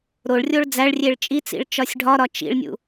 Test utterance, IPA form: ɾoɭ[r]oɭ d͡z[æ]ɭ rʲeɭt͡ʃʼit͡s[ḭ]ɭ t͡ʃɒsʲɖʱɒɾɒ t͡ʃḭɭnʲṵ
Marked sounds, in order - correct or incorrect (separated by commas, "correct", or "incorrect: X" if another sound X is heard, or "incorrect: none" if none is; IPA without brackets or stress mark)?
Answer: incorrect: rʲ, correct, correct